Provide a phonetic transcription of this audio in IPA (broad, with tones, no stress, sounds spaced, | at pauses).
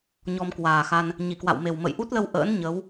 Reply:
ɲ ɔ˧ m k w aː˨˩ x a˧ n | ɲ i˧˩ k w a̰˧˨ w m e˨˩ w m ə̰˧˨ j ʔ u˦˥ t̚ l ə˧ w ʔ ə̰ː˧˥ n ɲ ə˨˦ w